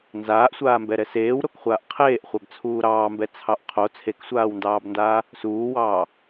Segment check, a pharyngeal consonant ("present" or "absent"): absent